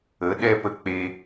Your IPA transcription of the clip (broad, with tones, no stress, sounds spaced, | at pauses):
ə˨˦ ɗ ɛ˦ p ə˧ k͡p e˧